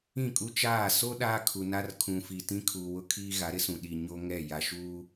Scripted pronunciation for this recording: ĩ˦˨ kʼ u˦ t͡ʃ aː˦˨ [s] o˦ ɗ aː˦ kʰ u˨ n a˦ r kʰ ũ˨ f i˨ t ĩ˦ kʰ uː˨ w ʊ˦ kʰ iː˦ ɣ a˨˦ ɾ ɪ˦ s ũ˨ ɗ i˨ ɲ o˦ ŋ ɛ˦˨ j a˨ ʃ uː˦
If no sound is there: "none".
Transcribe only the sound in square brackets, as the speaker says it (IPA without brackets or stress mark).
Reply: s